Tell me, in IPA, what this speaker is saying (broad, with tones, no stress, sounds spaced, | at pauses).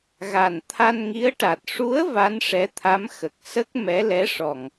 ɣ a˨˩ n t̪ʰ a˧ n ŋ i˧˥ ə̯ ʈ a˨˩ t̚ ʂ u˧˥ ə̯ v a˧˥ n ʂ ɛ˧˥ t̪ʰ a˧˥ m x ə˨˩ k̚ s ə˦˥ k̚ m ɛ˧˥ l ɛ˧˥ ʂ ɔ˨˩ ŋ